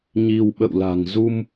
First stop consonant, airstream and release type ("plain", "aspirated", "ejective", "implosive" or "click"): implosive